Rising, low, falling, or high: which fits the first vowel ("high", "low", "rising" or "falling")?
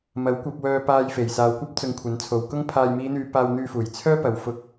rising